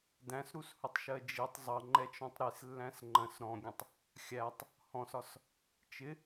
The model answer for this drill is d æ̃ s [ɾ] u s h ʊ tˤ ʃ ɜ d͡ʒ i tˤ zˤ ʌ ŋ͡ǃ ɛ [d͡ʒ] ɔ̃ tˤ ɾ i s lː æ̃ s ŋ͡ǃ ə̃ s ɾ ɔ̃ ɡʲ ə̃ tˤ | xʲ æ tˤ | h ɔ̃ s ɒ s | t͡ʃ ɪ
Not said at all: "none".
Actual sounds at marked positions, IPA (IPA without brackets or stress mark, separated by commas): ɾ, t͡ʃ